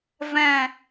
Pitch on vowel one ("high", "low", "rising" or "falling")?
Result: falling